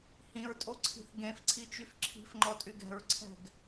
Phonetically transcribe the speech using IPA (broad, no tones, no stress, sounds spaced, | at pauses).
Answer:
h ĩ ɹ tʼ o ǀʰ i̤ θ ɡ ẽ f ǀʰ i t͡ʃ y f ǁʰ i̤ f ŋ͡ǃ ɔ tʼ y ɡ ɛ̤ ɹ ǀʰ ɛ̤ ɡ